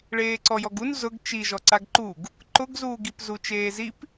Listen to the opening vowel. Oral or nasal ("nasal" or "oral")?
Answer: oral